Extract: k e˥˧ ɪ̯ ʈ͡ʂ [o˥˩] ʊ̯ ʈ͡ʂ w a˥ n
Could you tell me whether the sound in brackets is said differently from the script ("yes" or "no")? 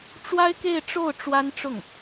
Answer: no